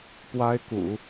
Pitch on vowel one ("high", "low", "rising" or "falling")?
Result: high